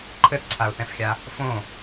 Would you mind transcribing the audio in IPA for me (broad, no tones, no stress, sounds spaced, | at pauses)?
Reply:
ǃʰ ɘ θ ǀʰ a ʊ̯ θ ɛ̃ f xʲ a | f õ